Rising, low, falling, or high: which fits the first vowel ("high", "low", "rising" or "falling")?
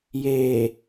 low